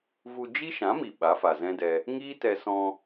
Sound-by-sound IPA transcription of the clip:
vu˧ d͡ʒi˦ʃã˨˦mi˨ ɓa˨˦fa˨zɛ̃˦dɛ˧ | ŋiː˦tɛ˧sɔ̃˧

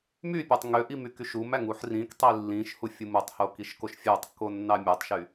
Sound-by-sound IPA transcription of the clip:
mypʲætˤ ŋøʔim ykyʃumæŋ uħrĩktˤi lːĩʃ hufʲɯmutˤho kiʃkoʃfʲætˤkːo nːɑmʲøtˤʃy

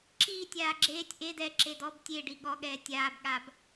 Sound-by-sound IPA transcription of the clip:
ǁiːtʲ aːɡ͡ǁeːtʲ ʔe dɛ ǁedɔb tʲe ɖiɠɔɠɛː tʲaːbɠab

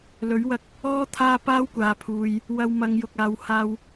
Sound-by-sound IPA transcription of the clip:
lɵ˨˥ɥwɐ˧k̚ | ɔː˥t̪ʰaː˥ paː˥wkʷaː˨pʰuː˨j | wɐ˧wmɐ˨˧ŋjʊ˨k̚ aː˨whaː˧w

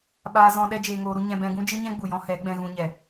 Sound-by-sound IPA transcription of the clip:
ɓaː˧zɔ̃˧ ɗɛ˦d͡ʒeː˧ŋoː˧ɾu˦ ɲɛ̃˧bɛ̃˧ ɡũ˦d͡ʒɨ˦ɲɛ̃˦ ɡ͡bu˨jɔ̃˧ hɛ˨˦ɡ͡bɛ̃˧ɣũ˧ɲɛ˨

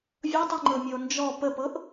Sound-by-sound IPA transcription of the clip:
vʲɤtˤʉŋ͡ǃɤmʲəo̯ nd͡ʒɔ pəpɤʔ

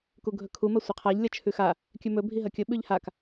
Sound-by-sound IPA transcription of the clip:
kuɡʱɵkʰu mɐsʷeqʰaʎ lʲɐt͡ʃʰʉxa | kʲʉmɵ bʱiɦɐkʲɵ ɓʉʎhak

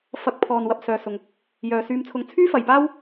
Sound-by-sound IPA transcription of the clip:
fɐ˧k̚ pʰɔː˨n wɐ˧p̚ sœː˨sʊ˨ŋ | jœː˨syː˧mt͡sʰʊ˧ŋ t͡sʰyː˥fɐ˨jpaː˥w

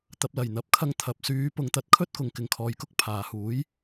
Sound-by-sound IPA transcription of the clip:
t̪ɐ˨p̚lɐ˨˩jn̪ɐ˨˥p̚kʰɐ˧ŋ t̪ʰɐ˨p̚syː˨˧ pʊ˨˧ŋt̪ɐ˨˥t̚kʰɵ˥t̚ kʊ˨ŋkɪ˨ŋkʰɔː˨jkʊ˥k̚ pʰaː˨huː˨˥j

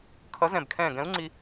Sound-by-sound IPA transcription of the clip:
kʰʌ˨˥ zɛ̃˧˩bkʰɛ̃ː˧˩ɡɛ̃˨˥u̯ ŋ͡ǀi˧

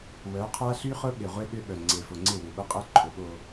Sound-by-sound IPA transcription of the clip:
wœ˨˦qʰa˦ ɬy˦χʊ˦ɓɪ˨ʁʷe˦ ɠʏ˦ɓœ˨ ŋ͡ǀe˨fʊ˨ ŋ͡ǀɪ˦˨ wø˨ɓʊ˦qʼɛ˦ ǃʰʊ˨˦ɠo˦

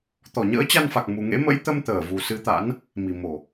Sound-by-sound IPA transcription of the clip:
t̪ɔ˧˩ɲə̰ː˧˥t͡ɕa˧nfa˨˩k̚ mu˨˩ŋḛ˧˥ mə̰˧˥jt̪ə˧m t̪əː˧˩vu˨˩ sɨ˧t̪a̰˧˥n | mi˨˩mo˨˩

